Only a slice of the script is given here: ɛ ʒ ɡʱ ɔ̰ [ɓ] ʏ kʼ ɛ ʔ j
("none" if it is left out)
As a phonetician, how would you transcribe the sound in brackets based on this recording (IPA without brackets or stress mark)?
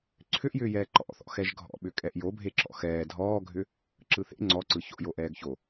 ɓ